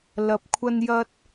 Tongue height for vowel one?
low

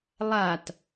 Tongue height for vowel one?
low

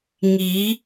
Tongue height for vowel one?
high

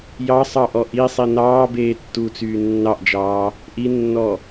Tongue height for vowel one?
low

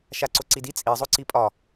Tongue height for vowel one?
low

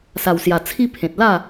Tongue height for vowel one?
low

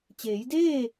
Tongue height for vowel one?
mid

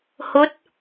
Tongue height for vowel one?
mid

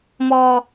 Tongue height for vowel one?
mid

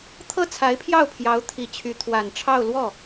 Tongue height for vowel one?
mid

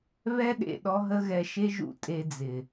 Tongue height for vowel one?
mid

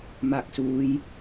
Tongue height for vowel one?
low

